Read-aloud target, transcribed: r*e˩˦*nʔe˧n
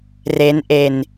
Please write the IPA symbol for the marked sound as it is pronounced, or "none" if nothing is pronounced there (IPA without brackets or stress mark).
e˦˥